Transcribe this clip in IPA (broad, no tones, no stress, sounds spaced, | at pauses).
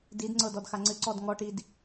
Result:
d i d ŋ͡ǀ ɤ d ɔ d x a ŋ͡ǀ ɨ ǀ ɔ d ŋ ɔ ʈ i d